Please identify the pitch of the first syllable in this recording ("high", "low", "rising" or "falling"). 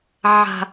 low